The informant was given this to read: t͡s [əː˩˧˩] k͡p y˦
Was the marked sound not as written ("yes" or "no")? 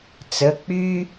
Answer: yes